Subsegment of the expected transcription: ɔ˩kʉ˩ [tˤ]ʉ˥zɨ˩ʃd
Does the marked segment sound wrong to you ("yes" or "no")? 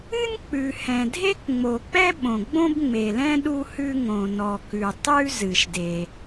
no